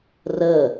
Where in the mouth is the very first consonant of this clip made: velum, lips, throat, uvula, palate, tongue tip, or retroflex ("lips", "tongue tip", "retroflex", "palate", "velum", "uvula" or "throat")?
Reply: tongue tip